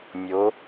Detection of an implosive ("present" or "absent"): absent